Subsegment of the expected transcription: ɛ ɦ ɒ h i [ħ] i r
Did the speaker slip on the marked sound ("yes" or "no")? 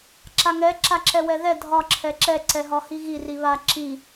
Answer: yes